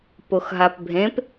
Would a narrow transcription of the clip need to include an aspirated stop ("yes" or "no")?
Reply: no